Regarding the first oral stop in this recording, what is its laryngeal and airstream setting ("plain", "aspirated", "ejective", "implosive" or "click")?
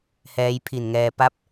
aspirated